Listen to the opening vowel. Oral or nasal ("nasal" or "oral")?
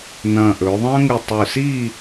nasal